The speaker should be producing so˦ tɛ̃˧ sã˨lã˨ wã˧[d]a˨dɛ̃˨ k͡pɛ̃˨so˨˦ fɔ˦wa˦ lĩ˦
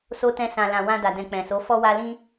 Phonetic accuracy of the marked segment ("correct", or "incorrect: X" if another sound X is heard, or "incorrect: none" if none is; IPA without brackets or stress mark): correct